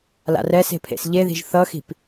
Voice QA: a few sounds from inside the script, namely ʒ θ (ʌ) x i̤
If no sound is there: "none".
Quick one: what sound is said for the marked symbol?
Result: ʌ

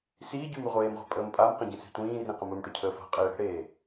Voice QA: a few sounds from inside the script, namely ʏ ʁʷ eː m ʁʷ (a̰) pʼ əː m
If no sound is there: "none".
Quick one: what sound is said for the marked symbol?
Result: a̤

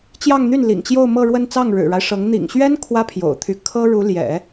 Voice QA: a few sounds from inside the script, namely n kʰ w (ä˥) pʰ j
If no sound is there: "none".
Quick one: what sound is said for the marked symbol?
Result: ä˥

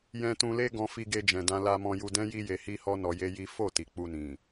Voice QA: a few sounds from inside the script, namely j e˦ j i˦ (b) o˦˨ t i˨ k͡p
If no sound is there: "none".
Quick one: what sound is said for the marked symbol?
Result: f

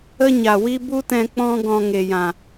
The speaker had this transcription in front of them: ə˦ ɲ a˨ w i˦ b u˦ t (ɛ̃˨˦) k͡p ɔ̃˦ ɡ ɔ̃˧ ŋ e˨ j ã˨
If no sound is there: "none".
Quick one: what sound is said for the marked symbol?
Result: ɛ̃˧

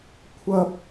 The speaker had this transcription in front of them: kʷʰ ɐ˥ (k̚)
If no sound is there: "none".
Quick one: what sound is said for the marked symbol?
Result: p̚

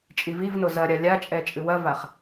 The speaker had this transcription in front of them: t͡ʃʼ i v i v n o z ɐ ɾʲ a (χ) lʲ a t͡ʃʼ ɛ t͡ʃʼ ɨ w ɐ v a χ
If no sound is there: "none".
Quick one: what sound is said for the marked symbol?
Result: none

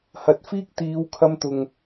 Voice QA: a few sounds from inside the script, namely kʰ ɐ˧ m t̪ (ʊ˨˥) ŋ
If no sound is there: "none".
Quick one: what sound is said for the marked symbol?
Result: ʊ˨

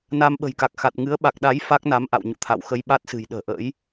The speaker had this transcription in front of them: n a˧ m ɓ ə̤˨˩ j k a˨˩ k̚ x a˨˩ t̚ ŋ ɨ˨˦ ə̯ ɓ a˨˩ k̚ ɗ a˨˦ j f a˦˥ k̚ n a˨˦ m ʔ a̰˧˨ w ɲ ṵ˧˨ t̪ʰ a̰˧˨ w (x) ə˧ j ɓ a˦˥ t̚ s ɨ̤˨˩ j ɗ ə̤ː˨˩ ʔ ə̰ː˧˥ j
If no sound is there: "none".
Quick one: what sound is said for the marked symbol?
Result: x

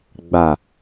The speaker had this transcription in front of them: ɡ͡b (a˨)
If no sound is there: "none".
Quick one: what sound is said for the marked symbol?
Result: a˨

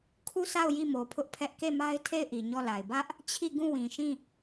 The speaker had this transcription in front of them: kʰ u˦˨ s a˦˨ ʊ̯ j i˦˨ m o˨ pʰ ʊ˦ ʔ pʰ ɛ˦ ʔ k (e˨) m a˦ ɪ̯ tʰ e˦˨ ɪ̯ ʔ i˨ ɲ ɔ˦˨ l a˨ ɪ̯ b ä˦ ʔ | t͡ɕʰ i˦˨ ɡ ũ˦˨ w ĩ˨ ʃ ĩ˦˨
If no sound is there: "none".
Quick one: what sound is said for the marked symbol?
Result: e˦˨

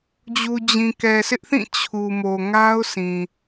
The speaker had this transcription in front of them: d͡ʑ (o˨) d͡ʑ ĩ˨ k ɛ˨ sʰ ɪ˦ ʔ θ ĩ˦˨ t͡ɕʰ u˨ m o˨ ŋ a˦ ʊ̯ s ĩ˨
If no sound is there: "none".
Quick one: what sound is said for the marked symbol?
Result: u˨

